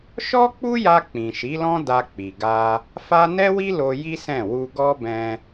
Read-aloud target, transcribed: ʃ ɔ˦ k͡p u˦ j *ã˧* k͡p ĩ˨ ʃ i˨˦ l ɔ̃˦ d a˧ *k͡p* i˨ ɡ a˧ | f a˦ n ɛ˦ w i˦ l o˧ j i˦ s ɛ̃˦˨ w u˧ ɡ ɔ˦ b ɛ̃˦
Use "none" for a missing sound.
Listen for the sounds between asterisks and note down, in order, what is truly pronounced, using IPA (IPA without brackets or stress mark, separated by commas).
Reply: a˧, k͡p